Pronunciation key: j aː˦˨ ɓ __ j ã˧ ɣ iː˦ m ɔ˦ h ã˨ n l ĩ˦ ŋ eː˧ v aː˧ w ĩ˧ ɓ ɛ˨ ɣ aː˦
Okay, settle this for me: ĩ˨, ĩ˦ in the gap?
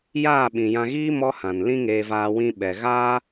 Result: ĩ˨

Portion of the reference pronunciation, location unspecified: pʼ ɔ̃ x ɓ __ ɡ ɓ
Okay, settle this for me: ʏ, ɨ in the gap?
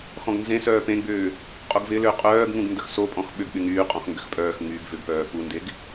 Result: ʏ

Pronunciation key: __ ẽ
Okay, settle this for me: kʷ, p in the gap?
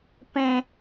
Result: p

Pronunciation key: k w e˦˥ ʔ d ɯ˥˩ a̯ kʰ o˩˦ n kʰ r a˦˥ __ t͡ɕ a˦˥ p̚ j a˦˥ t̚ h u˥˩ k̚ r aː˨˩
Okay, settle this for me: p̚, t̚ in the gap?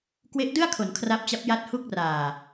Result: p̚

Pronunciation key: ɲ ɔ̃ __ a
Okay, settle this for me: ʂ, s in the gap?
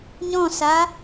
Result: s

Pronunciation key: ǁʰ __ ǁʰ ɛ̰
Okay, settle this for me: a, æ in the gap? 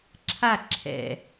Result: a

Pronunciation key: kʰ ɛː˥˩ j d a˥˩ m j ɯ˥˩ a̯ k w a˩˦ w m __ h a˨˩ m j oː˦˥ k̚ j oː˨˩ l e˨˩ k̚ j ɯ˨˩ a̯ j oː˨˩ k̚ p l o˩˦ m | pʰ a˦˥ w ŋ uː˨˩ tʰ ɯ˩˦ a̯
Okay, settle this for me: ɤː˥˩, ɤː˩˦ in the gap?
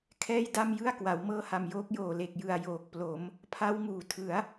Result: ɤː˥˩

